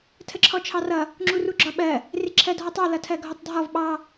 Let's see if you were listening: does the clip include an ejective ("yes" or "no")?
no